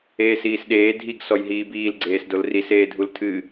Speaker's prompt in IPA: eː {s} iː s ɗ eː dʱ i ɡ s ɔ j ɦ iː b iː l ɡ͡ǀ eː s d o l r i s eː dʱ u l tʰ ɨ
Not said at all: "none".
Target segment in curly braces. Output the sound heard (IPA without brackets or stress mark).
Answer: s